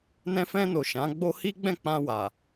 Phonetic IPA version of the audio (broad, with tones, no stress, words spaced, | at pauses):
nɛ̃˧fɛ̃˧no˨ ʃã˨˦ɡ͡bo˦ hi˦ ɡ͡bɛ̃˦˨k͡pã˧wa˨